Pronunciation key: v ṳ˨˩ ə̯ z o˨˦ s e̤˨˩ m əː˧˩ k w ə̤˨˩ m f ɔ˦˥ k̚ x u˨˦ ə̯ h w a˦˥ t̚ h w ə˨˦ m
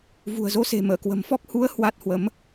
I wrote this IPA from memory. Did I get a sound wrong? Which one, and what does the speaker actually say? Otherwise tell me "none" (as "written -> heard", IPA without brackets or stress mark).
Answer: x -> h